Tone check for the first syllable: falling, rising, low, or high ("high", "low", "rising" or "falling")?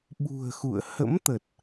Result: low